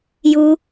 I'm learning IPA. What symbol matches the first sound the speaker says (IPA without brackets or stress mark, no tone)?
j